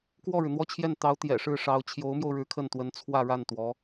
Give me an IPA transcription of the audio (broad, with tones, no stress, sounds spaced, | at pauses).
k w ɔ˥˩ ɻ ɻ̩˩ n̪ w ɔ˥˧ t͡ɕʰ j ɛ˥˩ n t̪ ɑ˧˥ ʊ̯ t̪ j ɛ̰˨˩ ʂ ɻ̩˥˩ ʂ ɑ˧˥ ʊ̯ t͡ɕʰ j o˧˥ ʊ̯ m j o˧ ʊ̯ ɻ ɻ̩˧˥ kʰ ə˥˩ n t̪ w ə˧˥ n t͡sʰ w ä˥˧ ɻ a˥˩ n t̪ w ɔ˧˥